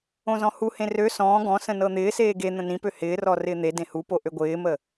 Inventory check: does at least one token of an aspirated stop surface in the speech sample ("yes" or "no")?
no